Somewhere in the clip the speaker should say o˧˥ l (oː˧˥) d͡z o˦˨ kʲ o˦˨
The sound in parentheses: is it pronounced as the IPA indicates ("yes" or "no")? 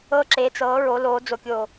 yes